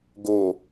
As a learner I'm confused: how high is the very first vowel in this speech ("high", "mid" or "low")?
mid